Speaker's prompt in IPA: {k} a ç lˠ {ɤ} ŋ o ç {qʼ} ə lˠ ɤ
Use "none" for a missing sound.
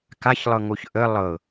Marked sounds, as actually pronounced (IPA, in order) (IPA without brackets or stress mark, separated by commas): k, ɤ, ʔ